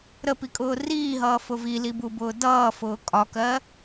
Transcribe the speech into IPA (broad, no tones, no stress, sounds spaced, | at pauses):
ɾ ə p i kʼ ʊː r iː ɦ ʌː f ʊ v i l i b u b ʊː d ʌː f ʊː kʼ ɒ k ɜ